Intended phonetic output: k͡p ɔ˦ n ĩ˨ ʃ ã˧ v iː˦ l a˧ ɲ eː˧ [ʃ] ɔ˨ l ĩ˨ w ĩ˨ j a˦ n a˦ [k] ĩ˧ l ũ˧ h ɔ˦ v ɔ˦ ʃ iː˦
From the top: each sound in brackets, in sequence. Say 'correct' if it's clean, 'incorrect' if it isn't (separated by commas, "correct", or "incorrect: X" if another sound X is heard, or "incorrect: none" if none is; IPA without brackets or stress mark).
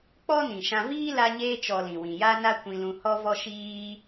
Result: incorrect: t͡ʃ, incorrect: kʷ